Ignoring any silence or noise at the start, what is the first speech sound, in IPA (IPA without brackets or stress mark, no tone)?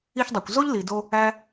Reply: i